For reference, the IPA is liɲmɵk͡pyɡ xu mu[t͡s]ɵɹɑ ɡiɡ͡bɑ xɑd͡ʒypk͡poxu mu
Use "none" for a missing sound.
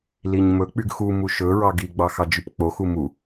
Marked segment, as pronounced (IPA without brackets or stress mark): ʃ